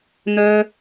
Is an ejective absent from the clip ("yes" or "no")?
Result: yes